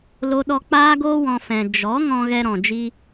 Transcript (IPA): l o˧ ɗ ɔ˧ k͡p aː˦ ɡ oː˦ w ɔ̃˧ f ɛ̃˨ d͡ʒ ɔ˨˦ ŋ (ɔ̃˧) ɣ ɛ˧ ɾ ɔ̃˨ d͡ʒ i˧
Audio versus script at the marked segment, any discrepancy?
no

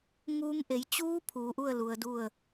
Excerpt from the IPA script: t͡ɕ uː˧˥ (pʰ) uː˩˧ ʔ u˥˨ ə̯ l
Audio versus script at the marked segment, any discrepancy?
no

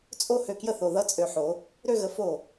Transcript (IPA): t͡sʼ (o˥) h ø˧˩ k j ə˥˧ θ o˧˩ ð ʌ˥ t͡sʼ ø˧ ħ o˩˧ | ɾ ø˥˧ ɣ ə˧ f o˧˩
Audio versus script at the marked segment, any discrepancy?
no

